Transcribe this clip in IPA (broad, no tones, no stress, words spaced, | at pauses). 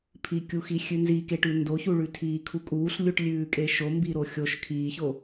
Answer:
pʰikʲuxi xʲʉnzikeʈʉ ndoçuɭʉ tʰiːkʰukʼuːɬ lʲuʈlʲʉːkʼeʃo mbiɾoxʲoʃ kʰiːço